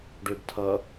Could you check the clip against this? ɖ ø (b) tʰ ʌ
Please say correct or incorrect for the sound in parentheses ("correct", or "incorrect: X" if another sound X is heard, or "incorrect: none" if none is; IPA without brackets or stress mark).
correct